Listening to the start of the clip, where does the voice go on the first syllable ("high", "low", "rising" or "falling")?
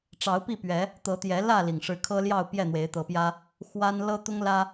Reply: rising